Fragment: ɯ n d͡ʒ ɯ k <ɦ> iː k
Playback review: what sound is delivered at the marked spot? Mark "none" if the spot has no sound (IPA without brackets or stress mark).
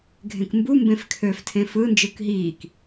ɦ